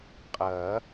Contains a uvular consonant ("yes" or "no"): yes